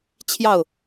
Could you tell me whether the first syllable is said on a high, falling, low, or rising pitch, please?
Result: falling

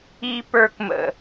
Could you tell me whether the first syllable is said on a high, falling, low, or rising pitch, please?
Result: low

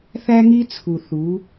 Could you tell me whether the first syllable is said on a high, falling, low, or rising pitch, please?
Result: high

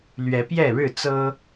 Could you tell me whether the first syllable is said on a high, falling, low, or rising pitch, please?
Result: rising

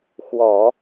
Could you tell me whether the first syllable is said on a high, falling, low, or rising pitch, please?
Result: low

